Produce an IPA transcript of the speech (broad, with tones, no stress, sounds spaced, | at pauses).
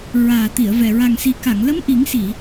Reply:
ɹ aː˨˩ t̪ i˨˩˨ ə̯ v ɛ˨˩ ɹ a˨˩ ŋ s i˨˩ k a˨˩˨ ŋ l ə˧˥ m ʔ i˨˩˦ ŋ s i˨˩˨